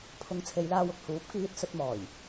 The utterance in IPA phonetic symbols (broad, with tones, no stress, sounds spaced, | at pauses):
pʰ ʊ˨˧ ŋ t͡sʰ e˨˧ j l aː˧ w ʊ˨ k̚ h uː˨˥ p̚ k iː˧ t̚ s ɵ˧ t̚ m ɔː˨˩ j